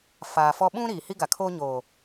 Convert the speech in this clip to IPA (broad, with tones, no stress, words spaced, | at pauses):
faː˨fɔ˦ ɓũ˦ ɾiː˨hi˦ ɡa˨kʰoː˦ ɲoː˨